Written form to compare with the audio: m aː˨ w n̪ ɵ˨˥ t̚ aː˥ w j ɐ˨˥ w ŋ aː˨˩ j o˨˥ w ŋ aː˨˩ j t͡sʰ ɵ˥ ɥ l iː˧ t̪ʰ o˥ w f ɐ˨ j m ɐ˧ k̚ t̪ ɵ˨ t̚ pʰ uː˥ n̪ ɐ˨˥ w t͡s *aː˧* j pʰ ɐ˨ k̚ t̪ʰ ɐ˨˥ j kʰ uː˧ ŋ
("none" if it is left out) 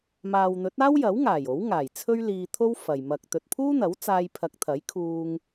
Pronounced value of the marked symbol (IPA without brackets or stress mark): aː˧